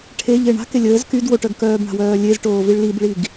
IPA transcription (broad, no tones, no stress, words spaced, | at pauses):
ʈʰeʎe ɳa̤ kelʲəːz kyd woʈœɡkœːb ɳa̤wœːlʲez ʈoːviɭlibɭiɡ